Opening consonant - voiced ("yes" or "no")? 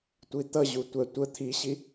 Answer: no